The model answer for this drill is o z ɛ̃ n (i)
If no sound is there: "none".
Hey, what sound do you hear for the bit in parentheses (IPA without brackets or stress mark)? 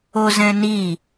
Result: i